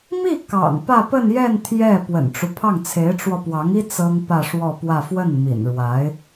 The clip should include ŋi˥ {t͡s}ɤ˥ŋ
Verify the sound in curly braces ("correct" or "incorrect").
correct